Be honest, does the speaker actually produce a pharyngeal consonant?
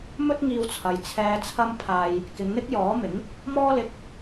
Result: no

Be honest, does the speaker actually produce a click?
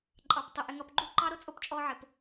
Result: yes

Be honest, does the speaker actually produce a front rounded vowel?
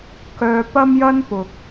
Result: yes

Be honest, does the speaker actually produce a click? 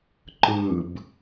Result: yes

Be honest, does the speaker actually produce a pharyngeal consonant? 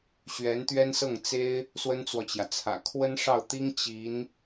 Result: no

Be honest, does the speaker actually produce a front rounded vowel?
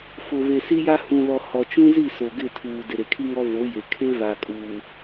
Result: no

